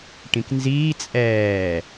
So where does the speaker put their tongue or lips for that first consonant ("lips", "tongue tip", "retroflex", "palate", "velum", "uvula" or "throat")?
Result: retroflex